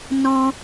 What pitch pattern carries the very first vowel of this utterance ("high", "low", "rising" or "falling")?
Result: high